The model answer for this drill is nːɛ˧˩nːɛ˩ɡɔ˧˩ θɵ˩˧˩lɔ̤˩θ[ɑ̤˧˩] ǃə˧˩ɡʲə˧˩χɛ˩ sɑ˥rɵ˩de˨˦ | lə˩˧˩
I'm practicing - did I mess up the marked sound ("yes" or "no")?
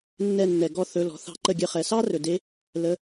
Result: yes